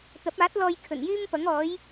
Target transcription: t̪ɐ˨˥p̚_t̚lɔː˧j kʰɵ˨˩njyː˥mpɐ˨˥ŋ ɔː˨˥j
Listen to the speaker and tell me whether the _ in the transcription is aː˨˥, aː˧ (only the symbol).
aː˨˥